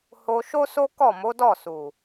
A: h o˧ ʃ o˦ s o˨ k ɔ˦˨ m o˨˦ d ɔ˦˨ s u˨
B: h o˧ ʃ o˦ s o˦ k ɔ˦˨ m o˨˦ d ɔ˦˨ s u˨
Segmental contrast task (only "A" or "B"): B